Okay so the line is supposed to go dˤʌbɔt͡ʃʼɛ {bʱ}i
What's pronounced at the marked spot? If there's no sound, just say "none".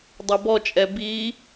b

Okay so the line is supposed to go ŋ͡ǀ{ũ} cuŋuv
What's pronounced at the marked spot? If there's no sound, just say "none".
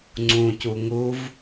ũ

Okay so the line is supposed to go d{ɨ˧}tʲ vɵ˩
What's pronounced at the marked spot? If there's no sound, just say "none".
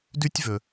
ʉ˧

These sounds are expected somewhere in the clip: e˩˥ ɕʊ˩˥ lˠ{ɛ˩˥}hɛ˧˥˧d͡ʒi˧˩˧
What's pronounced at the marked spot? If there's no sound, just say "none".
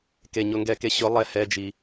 ɛ˦˨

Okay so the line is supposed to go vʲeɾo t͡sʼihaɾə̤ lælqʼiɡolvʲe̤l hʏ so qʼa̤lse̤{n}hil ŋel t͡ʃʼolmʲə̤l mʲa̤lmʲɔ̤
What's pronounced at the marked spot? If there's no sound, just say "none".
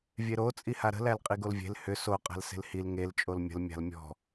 l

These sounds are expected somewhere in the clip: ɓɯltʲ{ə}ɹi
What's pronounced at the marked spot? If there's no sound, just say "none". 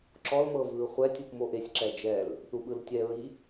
ɛ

